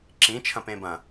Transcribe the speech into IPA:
ǁ ĩ t͡ʃʰ ɐ̃ p ẽ b ɐ̃

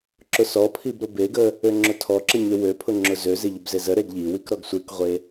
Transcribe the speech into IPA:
ǁ ʊ s ɔ pʰ i b ɾ ʊ b e ɡ ə | ø ŋ͡ǁ ʊ tʰ ɔ ǁ ə ɲ ø w ø pʰ ʊ ŋ͡ǁ ʊ z ø z e ʎ ʊ b z e z ə ɾ e ɡ ʎ i w i k ɾ ɔ ɡ sʷ e k ʁʷ e

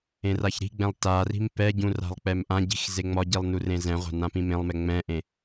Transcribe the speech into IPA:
ẽ r a ç ɾ i̤ ɡ͡b ɛ̃ lˠ t a r i̤ m p ɛ ɟ ũ r a̤ lˠ k͡p ɛ m ʔ ã ɟ i̤ x z e ŋ͡m ɒ ɟ i lˠ n u r ẽ z ɛ̃ ʁʷ a̤ n ã p ĩ m ẽ lˠ m ɛ ŋ͡m ɛ̃ ʔ ẽ

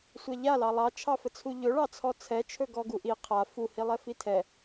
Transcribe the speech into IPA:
sʷ a ʎ a l ɑ lˠ ɑ t͡ʃʰ ɑ f ə t͡sʰ u ʎ ɵ ɭ ɑ t͡sʰ ɔ t͡sʰ ɛ t͡ʃʰ ɵ ɡ ɔ ɡ u ʔ i qʰ a f u h i lˠ ɛ f i tʰ ɛ

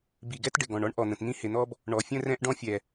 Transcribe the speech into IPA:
b i˩ ɡ ɛ˥ t ɖ ɪ˩ ɡ ɔ̃˩ ɳ ɔ˥ ɳ ʔ ɔ˩ n̪ ə̃˩ t n̪ ĩ˥ h ɪ˩ n̪ ɔ˥ b | ɳ ɔ˩ fʲ ə̃˥ r ɛ̃˥ ʔ ɖ ɔ̃˥ fʲ ɛ˩

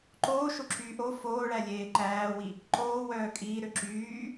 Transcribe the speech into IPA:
ǃ oː ʃ o ǁ yː ʔ o f oː ɭ æ lʲ eː ǃ æː w i | ǃ oː w œː kʼ iː ɾ ø ǁ yː

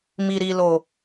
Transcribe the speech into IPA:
m i˨ ɾ i˨ l o˨

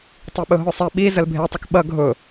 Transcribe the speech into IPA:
tˤ i ɓ ʊ ɦ ʊ sˤ ɛ ɓ i z ə l bʱ e tˤ ə k ɓ ʌ ɡʱ ʊ

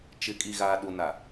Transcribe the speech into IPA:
t͡ʃ ɪ˨˦ kʼ i˨ ɣ aː˨ ɗ u˨ n a˨

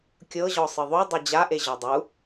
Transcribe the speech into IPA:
kʲ ɤ ʑ ɔ sˤ ɯ ðˤ u dˤ i d͡ʑ a ʔ e ʑ ɔ dˤ u

